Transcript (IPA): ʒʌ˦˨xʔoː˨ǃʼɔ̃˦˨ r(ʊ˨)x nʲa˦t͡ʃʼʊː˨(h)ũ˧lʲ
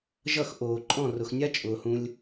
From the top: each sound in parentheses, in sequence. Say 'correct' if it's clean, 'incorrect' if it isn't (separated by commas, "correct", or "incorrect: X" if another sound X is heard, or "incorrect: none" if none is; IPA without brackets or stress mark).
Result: correct, correct